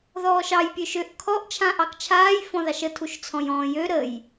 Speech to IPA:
ð ɔː ʃ ɑ j pʲ ø ʃ ø ʔ kʰ ɔ ʔ t͡ʃʰ ã ʔ ɑ k t͡ʃʰ aː j f ɔ̃ ð ɑ ʃ ə tʰ u ʃ t͡sʰ ɔ̃ j ɔ̃ː j ø ɾ ə j

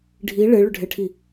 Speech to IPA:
ɖʱ i ɭ e ɭ ʏ ɖʱ e ʈʰ i

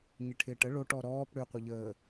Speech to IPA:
ɲ ɪ ʈʰ ɪː ʈ ə ɭ o ʈ ɔ ɾ ɔː p ɽ ʏ qʷ ɐ ʎ əː

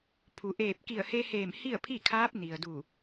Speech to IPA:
pʰ u˩˧ ʔ eː˧˩ p̚ k i˧˩ ə̯ h e˧ h eː˧˩ m h i˥˨ ə̯ pʰ i˥˨ kʰ aː˧˥ p̚ n i˩ ə̯ d u˧˩

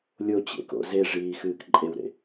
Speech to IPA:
lʲ o t͡ɕ ḛ k o̰ z e ʐ iː x ɨː k ǃʼ e w ɾ ḛ

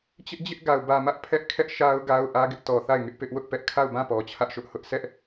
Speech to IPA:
t͡ɕ ɪ˦ ʔ d͡ʑ ɪ˦ ʔ ɡ a˨ ʊ̯ b ä˨ m ä˦ ʔ pʰ ɛ˦ ʔ kʰ ɛ˦ ʔ ʃ a˦ ʊ̯ ɡ a˦ ʊ̯ ʔ ä˦ ɡ ɪ˦ ʔ t ɔ˨ θ a˦˨ ɪ̯ ŋ ɪ˦ ʔ p ɪ˦ ʔ w ʊ˦ ʔ p ɛ˦ ʔ kʰ a˦˨ ʊ̯ b ã˦˨ p ɔ˨ t͡ɕʰ ä˦ ʔ ʃ ʊ˦ ʔ h ʊ˦ ʔ sʰ ɛ˦ ʔ

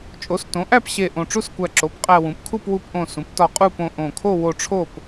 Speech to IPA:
t͡ʃʼ o˩˥ s t õ˩˥ ʔ æ˥˨ p ɕ e˧˩ ʔ õ˧˩ ʈ͡ʂ u˥˨ s kʷ æ˧˩ ǁ o˩˥ p qʼ æ˧ w ũ˩˥ p kʰ u˥˨ p w u˧ p ʔ õ˧˩ s ũ˩˥ p t ɒ˧ qʼ u˥˨ p õ˧ ʔ õ˧˩ kʰ o˥˨ w o˧ ʈ͡ʂʰ o˥˨ p

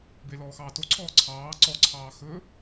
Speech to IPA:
b e l ɔː x ɑː t o ǀʰ ɔː ǀʰ ɑː ǀ ɔ ǀʰ ɑː x ɵ

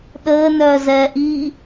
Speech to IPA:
ɗ əː n œː z ɛː ʔ i

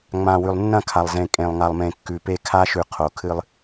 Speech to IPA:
ŋ͡m ã˨ w ʉ˨ lˠ nː ɐ̃˦˨ kʰ a˨ lˠ z ẽ˨ kʼ ẽ˨ lˠ ŋ a˨ lˠ m ẽ˨ kː ʉ˨ p e˦ kʰ a˦ ʃ ʉ˨ qʰ o˨ kʰ ɨ˦ lˠ

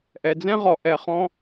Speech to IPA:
ʔ ɛ˩ d͡z ɛ̃˥ ʁ ɔ˩ ʔ ɛ˩ χ ɔ̃˧

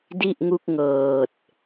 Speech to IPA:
d i˥˩ ʔ ŋ u˥˩ k̚ ŋ ɤː˨˩ t̚

